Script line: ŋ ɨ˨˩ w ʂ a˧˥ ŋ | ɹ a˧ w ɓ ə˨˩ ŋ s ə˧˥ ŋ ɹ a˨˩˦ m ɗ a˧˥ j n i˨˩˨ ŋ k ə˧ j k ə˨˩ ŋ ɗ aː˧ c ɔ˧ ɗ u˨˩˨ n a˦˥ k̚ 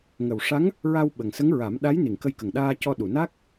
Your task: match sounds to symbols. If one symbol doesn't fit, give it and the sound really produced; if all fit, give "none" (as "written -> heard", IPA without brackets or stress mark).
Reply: ɨ˨˩ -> ə˨˩